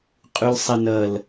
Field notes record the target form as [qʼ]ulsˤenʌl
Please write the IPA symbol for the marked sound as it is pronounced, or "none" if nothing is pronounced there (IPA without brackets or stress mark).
qʼ